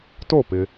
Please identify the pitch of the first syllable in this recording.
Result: falling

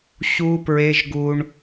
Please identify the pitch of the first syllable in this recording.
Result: high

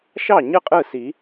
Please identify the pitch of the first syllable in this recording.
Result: falling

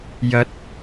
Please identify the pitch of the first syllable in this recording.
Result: rising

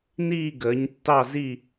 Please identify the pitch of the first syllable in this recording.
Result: falling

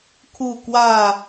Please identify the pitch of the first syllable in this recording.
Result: falling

